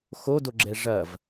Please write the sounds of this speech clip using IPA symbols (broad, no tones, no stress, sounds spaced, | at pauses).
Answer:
x o d o ɡ͡ǁ ɛ ʐ ɐ v